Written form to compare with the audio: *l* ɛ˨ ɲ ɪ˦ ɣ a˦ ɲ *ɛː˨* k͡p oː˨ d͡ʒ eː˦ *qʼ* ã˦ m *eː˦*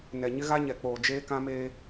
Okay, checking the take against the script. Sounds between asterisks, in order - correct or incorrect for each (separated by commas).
incorrect, incorrect, incorrect, correct